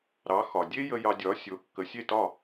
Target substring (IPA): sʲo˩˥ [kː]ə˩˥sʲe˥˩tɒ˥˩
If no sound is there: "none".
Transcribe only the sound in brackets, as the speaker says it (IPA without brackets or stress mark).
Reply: kː